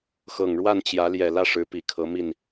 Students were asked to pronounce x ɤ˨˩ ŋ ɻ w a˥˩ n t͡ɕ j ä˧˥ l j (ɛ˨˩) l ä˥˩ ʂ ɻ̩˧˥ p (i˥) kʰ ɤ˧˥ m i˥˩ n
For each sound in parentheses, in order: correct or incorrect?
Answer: correct, incorrect

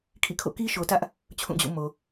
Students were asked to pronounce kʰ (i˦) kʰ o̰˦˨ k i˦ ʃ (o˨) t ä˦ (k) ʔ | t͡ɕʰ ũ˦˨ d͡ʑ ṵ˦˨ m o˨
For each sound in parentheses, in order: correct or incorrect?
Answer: incorrect, correct, incorrect

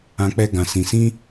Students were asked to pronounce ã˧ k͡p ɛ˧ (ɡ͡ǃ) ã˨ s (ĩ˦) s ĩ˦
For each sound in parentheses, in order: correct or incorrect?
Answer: incorrect, incorrect

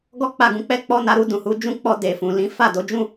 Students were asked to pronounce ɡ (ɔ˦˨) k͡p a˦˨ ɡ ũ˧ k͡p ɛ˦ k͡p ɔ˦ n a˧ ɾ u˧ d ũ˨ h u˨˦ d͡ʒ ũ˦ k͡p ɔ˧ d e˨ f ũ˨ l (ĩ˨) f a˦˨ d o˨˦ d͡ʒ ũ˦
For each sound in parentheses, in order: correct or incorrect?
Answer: incorrect, incorrect

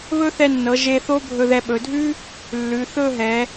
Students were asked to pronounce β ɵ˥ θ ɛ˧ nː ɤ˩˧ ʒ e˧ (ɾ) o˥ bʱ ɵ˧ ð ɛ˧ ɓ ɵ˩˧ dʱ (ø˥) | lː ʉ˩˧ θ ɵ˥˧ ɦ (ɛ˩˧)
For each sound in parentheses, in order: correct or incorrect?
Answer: incorrect, incorrect, correct

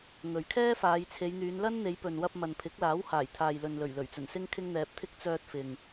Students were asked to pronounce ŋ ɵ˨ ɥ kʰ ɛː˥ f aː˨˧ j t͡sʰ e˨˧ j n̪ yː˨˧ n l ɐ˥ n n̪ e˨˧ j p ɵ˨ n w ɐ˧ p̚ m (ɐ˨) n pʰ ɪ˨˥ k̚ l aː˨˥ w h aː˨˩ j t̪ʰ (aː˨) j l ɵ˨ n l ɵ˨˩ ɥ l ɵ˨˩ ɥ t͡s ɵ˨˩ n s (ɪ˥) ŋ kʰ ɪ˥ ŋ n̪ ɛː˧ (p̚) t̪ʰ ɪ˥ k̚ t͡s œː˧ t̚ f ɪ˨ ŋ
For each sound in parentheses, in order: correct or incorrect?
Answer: correct, correct, correct, correct

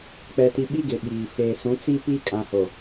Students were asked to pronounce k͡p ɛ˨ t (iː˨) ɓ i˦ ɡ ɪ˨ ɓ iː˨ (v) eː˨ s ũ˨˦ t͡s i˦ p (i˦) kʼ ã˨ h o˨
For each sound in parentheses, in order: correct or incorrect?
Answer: incorrect, incorrect, correct

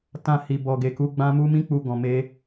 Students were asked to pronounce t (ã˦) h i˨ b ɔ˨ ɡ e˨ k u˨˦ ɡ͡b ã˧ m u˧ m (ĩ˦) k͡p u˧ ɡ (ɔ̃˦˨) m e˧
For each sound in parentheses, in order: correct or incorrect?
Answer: incorrect, correct, incorrect

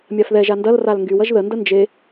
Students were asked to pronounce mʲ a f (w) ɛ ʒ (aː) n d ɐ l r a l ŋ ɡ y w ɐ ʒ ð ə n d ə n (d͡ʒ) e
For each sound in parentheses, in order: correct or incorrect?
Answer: incorrect, incorrect, correct

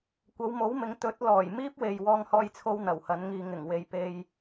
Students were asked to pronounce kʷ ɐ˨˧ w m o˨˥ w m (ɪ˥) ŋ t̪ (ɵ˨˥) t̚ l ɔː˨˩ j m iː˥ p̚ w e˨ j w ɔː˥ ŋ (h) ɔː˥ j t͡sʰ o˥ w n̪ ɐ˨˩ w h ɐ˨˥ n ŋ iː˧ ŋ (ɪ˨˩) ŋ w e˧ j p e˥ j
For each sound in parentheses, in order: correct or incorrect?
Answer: incorrect, correct, correct, correct

